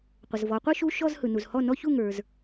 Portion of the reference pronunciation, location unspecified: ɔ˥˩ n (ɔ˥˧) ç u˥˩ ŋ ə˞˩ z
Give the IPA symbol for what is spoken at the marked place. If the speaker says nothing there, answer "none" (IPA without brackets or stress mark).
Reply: ɔ˥˧